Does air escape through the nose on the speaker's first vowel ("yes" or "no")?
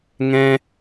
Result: yes